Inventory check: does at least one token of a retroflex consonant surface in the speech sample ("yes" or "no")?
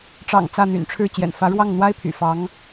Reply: yes